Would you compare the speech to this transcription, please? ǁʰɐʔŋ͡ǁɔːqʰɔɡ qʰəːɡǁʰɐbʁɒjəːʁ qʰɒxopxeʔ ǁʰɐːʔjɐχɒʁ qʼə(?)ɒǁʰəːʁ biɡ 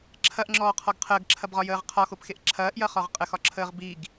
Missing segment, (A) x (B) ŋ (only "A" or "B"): A